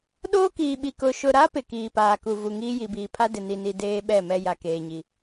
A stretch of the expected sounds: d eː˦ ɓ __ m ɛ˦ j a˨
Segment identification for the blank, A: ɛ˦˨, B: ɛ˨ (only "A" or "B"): A